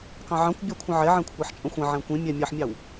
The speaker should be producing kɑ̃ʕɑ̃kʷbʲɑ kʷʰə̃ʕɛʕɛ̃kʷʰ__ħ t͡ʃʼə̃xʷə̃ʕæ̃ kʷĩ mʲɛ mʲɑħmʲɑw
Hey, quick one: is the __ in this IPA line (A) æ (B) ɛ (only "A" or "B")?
A